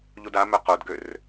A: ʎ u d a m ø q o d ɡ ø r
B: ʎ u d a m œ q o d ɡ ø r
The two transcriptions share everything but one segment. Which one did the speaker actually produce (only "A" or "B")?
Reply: B